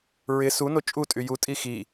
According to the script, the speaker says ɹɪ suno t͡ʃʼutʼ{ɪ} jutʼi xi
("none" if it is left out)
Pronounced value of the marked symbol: y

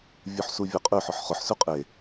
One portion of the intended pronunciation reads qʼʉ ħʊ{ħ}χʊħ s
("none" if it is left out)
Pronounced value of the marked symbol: ħ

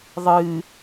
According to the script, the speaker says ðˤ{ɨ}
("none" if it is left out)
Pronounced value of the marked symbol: ɨ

